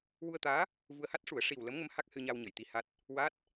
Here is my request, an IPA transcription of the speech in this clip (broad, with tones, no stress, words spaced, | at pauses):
wu˧ə̯t̪aː˧˥ | vu˧ə̯ ha˦˥t̚ʂu˨˩˦ə̯ ʂi˨˩wlə˧˥mŋə˧˥m ha˦˥k̚hɨ˧ɲa˧wɲə˨˩˨j t̪i˧ha˦˥t̚ | wa˦˥t̚